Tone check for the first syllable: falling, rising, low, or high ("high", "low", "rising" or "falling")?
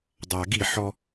low